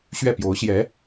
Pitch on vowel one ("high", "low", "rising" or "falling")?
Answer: falling